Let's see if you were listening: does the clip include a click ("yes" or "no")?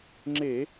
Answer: yes